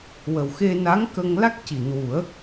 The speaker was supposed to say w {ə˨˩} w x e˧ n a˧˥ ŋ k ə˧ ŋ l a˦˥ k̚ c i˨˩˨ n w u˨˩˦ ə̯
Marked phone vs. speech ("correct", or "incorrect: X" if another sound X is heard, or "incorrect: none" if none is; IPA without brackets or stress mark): correct